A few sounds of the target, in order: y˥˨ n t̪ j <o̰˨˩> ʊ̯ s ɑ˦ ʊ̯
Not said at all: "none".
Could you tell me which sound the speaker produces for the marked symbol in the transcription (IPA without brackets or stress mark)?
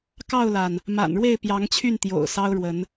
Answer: o̰˨˩